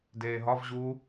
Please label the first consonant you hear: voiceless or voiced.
voiced